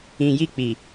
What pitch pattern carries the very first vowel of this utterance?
low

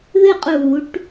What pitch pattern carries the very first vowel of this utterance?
falling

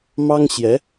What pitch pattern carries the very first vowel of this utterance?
high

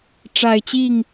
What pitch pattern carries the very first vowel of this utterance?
low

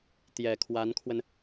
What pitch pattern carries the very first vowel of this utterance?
low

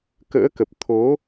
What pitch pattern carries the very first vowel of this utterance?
rising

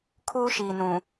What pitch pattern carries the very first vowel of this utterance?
high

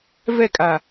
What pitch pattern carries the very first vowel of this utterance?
falling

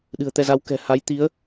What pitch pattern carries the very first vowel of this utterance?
low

